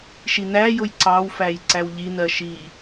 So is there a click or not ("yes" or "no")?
yes